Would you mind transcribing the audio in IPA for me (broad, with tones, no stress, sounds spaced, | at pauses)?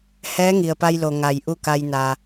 h ɛː˧˥ ŋ i˩ ə̯ p a˧ j l o˩ ŋ a˩ j ʔ u˥˨ k a˧ j n a˩